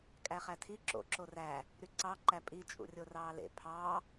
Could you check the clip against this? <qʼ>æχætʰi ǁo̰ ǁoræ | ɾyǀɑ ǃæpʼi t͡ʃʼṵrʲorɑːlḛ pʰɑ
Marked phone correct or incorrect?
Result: incorrect: kʼ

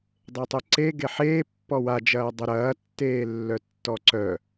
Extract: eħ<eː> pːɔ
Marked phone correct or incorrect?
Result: correct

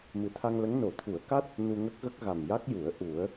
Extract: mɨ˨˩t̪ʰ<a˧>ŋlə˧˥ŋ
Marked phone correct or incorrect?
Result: correct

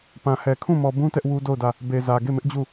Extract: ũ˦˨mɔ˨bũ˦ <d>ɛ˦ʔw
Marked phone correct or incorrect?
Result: incorrect: t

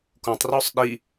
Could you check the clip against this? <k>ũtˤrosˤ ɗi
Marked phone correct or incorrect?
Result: correct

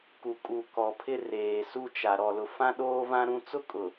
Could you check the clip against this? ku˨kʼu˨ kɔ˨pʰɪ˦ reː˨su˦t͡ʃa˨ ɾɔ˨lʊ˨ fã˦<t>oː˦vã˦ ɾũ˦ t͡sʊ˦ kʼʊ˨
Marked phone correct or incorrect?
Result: incorrect: ɗ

